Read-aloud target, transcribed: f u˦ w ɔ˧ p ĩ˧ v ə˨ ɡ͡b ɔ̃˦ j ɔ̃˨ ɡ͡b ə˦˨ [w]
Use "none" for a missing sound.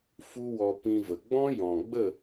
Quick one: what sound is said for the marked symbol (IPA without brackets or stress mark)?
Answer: none